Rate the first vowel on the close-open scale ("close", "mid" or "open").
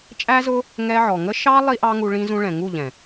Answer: open